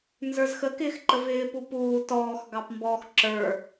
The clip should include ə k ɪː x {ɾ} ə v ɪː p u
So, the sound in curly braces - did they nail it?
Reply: no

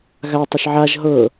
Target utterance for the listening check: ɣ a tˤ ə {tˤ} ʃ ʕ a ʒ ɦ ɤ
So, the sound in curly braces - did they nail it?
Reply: no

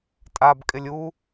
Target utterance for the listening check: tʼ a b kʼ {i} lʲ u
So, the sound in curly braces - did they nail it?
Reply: no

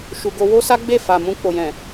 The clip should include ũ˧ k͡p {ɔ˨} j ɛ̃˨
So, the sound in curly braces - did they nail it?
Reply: no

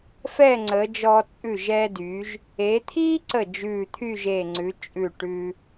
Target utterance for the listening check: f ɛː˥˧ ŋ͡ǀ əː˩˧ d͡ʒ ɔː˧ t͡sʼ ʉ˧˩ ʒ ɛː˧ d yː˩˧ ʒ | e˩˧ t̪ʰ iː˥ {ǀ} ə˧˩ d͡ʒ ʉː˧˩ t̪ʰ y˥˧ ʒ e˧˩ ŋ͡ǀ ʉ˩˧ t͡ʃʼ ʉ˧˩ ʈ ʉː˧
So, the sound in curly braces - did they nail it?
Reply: yes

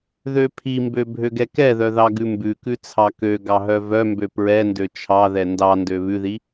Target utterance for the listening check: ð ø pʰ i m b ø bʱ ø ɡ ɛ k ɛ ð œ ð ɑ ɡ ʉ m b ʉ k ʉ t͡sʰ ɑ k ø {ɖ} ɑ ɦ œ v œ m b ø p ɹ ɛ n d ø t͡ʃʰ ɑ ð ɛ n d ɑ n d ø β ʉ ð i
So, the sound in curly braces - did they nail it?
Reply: no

